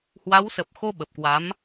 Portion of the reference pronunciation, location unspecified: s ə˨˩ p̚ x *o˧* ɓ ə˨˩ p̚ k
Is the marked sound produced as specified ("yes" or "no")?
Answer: yes